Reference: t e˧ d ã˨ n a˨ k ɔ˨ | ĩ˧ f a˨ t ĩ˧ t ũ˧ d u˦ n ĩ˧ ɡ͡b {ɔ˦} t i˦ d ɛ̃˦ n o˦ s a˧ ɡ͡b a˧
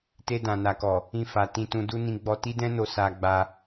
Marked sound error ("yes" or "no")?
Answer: yes